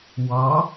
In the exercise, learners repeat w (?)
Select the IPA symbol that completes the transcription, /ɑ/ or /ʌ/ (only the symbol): ɑ